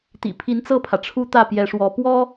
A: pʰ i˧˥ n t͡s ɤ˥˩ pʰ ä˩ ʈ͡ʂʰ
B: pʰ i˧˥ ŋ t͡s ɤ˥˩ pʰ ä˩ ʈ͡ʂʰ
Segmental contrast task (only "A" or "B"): A